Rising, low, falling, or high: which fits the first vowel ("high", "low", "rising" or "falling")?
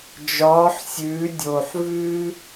rising